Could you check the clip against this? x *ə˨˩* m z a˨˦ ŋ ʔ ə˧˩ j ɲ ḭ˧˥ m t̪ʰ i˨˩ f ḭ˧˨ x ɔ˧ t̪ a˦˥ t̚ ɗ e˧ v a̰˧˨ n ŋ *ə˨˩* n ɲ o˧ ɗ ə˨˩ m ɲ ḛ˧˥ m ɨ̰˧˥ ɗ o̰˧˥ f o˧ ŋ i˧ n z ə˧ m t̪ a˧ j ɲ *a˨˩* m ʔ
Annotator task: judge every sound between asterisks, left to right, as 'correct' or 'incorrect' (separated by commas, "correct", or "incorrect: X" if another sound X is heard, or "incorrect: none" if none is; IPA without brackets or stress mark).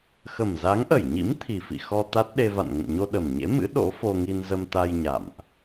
correct, incorrect: ə̰˧˨, incorrect: a̰˧˨